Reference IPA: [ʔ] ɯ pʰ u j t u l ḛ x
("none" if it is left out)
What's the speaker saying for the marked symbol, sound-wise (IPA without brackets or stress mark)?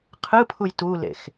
qʰ